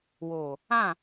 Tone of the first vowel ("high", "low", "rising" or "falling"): low